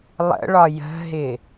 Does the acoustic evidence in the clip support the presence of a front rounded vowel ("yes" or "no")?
no